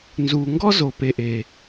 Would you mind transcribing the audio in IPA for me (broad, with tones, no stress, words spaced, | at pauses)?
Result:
nzu˨ŋɡɔ˦zo˨ pe˦ʔe˦